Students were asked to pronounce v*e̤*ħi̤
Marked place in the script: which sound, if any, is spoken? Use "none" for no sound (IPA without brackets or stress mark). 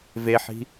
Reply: e